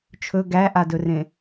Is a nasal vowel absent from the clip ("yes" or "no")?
no